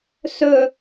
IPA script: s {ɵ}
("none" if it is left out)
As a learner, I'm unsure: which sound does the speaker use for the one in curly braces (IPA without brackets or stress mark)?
ɵ